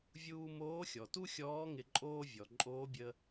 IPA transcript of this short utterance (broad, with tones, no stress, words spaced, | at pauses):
vʲuː˧ moː˧˥xʲɔ˩tu˥xʲɔː˧˥ ŋɪ˧ǃʼoː˥ vʲɔ˩ǃʼoː˧˥bʲə˧